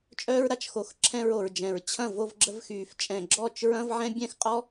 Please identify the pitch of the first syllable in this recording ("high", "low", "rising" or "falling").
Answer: high